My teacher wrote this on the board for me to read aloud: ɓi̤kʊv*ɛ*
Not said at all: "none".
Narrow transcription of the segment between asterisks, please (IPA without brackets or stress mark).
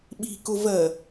ɜ